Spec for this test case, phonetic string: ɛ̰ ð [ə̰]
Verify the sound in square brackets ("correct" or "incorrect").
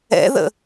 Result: correct